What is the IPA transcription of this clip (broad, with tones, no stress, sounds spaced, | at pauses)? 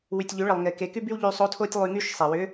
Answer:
w y˩ tʲ ʎ y˩˧ ɭ ə˩ lˠ ŋ e˩ k e˩˧ k y˥ b y˥ w ʎ y˧ sˤ o˧˥ tʰ o˥ tʲ lˠ y˧ ŋ y˥ ʃ sˤ e˩ w ʏ˧˥